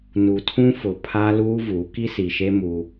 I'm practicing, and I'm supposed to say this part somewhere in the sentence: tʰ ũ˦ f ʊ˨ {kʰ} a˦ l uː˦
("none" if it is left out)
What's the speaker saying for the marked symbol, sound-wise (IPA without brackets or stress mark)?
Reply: pʰ